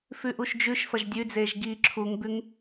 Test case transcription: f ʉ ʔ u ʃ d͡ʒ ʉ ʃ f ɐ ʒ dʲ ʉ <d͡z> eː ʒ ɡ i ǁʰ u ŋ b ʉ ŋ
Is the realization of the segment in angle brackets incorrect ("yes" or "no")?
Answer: no